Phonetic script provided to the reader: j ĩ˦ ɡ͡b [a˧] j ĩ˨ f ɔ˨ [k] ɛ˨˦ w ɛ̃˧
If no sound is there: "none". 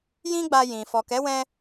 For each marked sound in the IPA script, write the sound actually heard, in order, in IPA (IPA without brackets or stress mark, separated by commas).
a˧, k